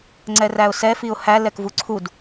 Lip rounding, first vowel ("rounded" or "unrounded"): unrounded